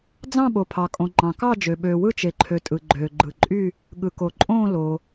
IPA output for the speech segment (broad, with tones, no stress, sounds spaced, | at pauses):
d͡z ɑ̃˥˨ ɓ o˩ pʰ ɑ˩ kʼ õ˩ ŋ͡ǃ ɑ̃˩ k ɑ˥˨ d͡ʒ ø˩ ɓ øː˩ w ɯ˥˨ t͡ʃ e˩ ǃʰ ø˩ tʼ ɯ˩ ɡ͡ǃ øː˩ ɡ͡ǃ ɯ˩ ǃʼ y˥˨ | ɠ ɯ˩ k o˩ ǃʼ õː˥˨ l o˩